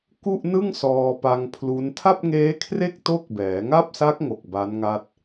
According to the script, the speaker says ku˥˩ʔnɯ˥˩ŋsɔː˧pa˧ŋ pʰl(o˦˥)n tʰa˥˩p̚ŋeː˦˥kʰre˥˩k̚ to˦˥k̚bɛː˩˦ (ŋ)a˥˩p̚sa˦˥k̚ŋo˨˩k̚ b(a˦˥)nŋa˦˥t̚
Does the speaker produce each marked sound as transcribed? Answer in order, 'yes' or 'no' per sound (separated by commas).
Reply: no, yes, yes